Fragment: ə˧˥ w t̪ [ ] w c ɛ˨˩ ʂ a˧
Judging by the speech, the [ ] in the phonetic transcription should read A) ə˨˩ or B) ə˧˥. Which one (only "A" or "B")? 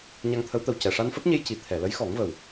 A